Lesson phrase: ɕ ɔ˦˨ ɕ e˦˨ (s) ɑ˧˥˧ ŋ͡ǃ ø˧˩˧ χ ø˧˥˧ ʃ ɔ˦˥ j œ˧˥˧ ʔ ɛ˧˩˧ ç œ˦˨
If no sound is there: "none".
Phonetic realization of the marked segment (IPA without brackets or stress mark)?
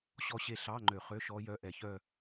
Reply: ɬ